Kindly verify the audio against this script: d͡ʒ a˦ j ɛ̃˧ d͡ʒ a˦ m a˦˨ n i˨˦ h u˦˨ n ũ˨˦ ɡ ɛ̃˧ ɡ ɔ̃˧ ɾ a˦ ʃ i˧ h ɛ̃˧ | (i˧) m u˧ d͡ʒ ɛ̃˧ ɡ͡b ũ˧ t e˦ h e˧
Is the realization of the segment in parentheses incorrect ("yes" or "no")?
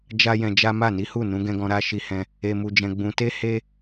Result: yes